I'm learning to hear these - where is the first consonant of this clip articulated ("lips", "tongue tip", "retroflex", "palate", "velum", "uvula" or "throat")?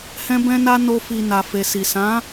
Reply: throat